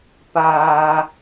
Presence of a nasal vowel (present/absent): absent